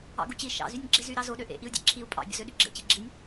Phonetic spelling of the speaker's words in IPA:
ɑ̰ ɡ u t͡ɕ i ʃ ɑ̰ z y nʲ ɡ͡ǁ e z y ɾ ɑ z o ɗ ø ʔ ḛ ʔ i u̯ dʲ ɑ̰ ǁʰ i u̯ pʼ ɑ̰ bʲ o̰ z ø ɗ y ɡ͡ǁ ḛ t͡ɕ i ɡ͡ǁ i nʲ

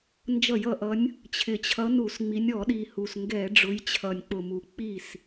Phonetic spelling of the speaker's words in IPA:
n d͡ʒ ʌ˧˩˧ j ʌ˨˩ ʔ ʌ˨˦ nʲ | t͡ɕʰ ɪ˨˩ t͡ɕʰ ʌ˨˦ n u˧˩˧ s ŋ͡m i˨˦ nʲ ɔ˧˩˧ ɗ i˨˩ h u˨˩ s ŋ ɡ ɛ˧˩˧ ɖ͡ʐ ʊ˨˦ j t͡ɕʰ ʌ˨˩ nʲ k͡p ʊ˨˩ m u˨˩ k͡p i˥˩ s

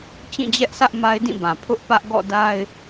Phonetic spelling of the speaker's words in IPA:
t͡ɕ ĩ˦˨ d͡ʑ ɛ˦ ʔ sʰ ä˦ ʔ m a˦ ɪ̯ d ĩ˦˨ b ã˨ pʰ ʊ˦ ʔ p ä˦ ʔ ɡ ɔ̰˦˨ d a˦ ɪ̯

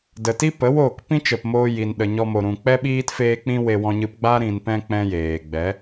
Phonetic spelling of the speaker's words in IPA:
d ə˨ t i˦ p ə˨˦ w oː˦˨ k p ĩ˦ t͡ʃ ə˨ p m oː˧ j i˨ n ɗ ə˨ ɲ ɔ˧ m o˨ ɾ ũ˨ k͡p ɛ˦ ɓ iː˦ t f eː˦ k͡p ĩ˦ w e˧ w ɔ̃˧ ɲ ɨ˧ p ɡ͡b a˦ ɾ ĩ˨ n p ɛ̃˧ k͡p ɛ̃˦ j eː˨ ɡ͡b ɛ˨˦

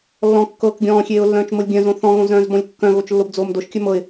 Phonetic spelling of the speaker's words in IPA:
lː ɔ̃ kː ɤː k ɡʲ ɔ̃ː xʲ eː ʊ̯ lː œ̃ː t͡ʃ m ɤ lʲ ɡʲ œ̃ z õ θ ɔ̃ ɣ õ z œ̃ː z b ɔ̃ lʲ kː œ̃ ɣ o t͡ʃ lː o b d͡z oː m d o ʃ kʲ œ m ɤ ɪ̯

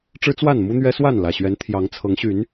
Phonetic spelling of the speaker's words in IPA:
ʈ͡ʂ ɻ̩˦ t͡s w a˥˨ n m u˦ n̪ ɥ ɛ˦ s w a˥˨ n l ä˨˩ ɕ ɥ ɛ˨˦ n t̪ʰ j ɑ˨˦ ŋ t͡sʰ ɤ˨˦ ŋ ɕ y˨˦ n

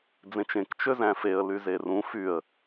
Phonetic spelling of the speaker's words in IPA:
d͡z ẽ t͡ʃ ẽ k t͡ʃ ø z æ̃ f e ə̯ l y z e r ũ f y ə̯

